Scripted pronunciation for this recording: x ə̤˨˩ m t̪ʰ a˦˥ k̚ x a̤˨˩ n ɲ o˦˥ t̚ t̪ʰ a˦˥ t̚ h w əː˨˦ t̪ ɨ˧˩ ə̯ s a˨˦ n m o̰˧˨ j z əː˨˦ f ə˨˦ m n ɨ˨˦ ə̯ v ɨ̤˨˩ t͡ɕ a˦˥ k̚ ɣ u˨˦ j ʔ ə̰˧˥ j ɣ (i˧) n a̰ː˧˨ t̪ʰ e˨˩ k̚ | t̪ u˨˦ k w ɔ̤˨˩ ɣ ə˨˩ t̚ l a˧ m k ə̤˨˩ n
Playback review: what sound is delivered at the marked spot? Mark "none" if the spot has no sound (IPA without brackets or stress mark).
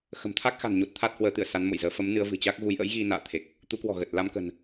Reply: i˧